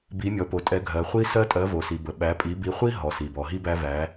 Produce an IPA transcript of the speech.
bi˩˧mʲɔ˩po˩tʼɛ˩˧ ɡʱɜ˩χʷi˧ sɜ˧tʼɜ˩˧vo˩si˩ bə˩ɓæ˩˧pʼi˩˧ bi˩˧χʷi˧ ɦɔ˩si˩bɔ˩ɦi˧ bæ˧væ˩˧

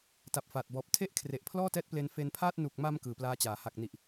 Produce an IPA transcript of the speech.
ta˨˩p̚faː˨˩t̚bɔː˨˩p̚ tʰe˥˩ʔ kʰre˨˩ʔpʰlɔː˥˩tɛː˦˥t̚ple˧n fe˧n pʰaː˥˩t̚ nu˨˩k̚ma˧m kɯː˨˩plaː˦˥t͡ɕaː˩˦ ha˨˩k̚ni˨˩ʔ

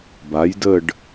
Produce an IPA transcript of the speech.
ba˨˥jdə˥˧ɖ

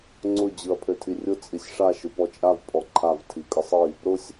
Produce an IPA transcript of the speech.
ŋ͡ǀʊ d͡ʑɯɐ̯pʰøtʰirʲʊ t͡sʼisʲʂa ʃɯpɔt͡ʃʼav pʼɔǃʰav tʰikʼɯsˤi | ɾʊsʲ

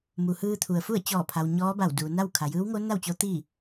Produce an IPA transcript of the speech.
mu˩hɯː˧t̪ʰu˩ə̯fu˥˨ə̯ t͡ɕɔː˧˩pʰa˩w ɲɔː˧˥ba˧˩w du˩na˥˨w kʰa˩jɯː˧˥wŋo˧˥ na˥˨wt͡ɕo˧˥ t̪i˥˨

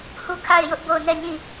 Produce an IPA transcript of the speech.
hu˦˨kʰa˦˨ɪ̯jʊ˦ʔ bo˦˨ʊ̯ nɛ˦˨ɲĩ˦˨

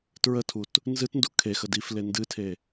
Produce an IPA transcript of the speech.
tɹətʰut | nzɨtndu kʰexə difle ndɨtʰe

